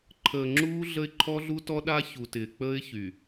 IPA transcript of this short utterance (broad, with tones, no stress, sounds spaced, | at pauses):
ǃʰ əː˨ ŋ͡ǁ uː˦ ɮ ə˦ ɪ̯ ǃʰ ɔ˦ ɮ u˦ t ɔ˦ ɗ a˦ ç u˨ t ɪː˨ k͡p əː˦ ɪ̯ ç y˨